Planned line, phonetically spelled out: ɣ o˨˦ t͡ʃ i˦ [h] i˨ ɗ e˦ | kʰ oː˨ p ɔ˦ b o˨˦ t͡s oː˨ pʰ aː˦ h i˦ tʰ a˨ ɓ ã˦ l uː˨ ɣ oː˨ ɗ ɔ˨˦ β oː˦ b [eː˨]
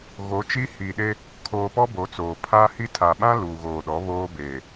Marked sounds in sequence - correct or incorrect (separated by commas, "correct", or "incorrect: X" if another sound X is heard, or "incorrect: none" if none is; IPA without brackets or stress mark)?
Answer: correct, correct